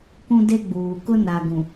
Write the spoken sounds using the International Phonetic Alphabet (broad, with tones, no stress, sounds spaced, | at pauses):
k ũ˦ d e˦ ɡ͡b uː˨ k ʊ˦ n a˨ ɡ ũ˨